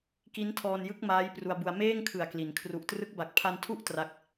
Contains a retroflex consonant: no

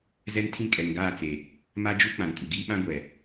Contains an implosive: yes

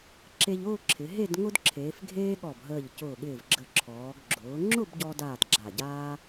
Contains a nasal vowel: no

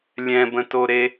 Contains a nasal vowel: yes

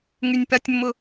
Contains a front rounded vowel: yes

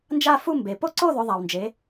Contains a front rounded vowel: no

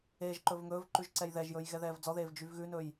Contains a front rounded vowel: yes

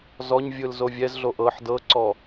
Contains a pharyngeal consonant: yes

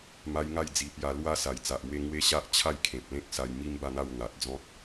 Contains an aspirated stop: yes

